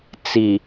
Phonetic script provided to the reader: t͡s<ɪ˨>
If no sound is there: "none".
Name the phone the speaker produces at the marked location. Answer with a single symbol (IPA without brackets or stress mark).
i˨